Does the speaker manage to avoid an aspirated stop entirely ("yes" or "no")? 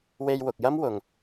yes